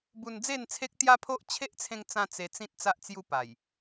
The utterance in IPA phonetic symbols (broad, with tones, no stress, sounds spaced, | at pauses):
b u˧ n d͡z e˥˧ n t͡sʰ e˦ k̚ t̪ j a˦ pʰ o˦ ʔ t͡ɕʰ e˦ ʔ t͡sʰ ẽ˧ ŋ t͡s ã˧ t͡s e˧ t͡s ĩ˦ t̚ t͡s a˦ ʔ t͡s j u˦ p a˨˩ j